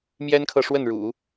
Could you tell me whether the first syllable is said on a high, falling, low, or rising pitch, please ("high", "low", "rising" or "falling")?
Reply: high